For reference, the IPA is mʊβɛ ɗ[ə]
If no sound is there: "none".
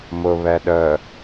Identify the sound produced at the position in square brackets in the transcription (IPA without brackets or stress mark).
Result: ə